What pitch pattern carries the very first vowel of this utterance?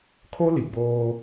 high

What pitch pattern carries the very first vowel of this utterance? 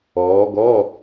rising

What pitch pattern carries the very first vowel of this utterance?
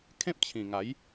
high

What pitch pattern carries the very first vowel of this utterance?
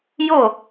falling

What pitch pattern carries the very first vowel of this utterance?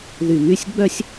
low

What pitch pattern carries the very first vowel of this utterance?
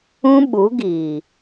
high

